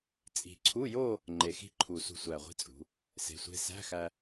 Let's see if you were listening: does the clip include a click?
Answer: yes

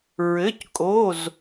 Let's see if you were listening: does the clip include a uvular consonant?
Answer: no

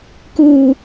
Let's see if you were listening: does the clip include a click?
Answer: no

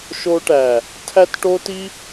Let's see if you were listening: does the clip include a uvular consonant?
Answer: no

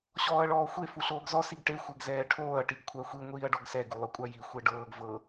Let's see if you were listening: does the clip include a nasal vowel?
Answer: no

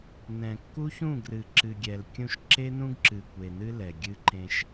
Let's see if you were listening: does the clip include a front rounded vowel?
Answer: no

